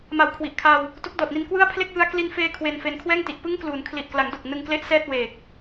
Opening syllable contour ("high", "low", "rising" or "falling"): low